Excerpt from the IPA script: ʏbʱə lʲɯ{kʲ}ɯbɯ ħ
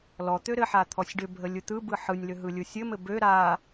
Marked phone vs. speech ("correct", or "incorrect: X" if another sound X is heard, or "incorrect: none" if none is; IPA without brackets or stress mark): incorrect: t̪